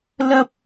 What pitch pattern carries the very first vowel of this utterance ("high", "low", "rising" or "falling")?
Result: high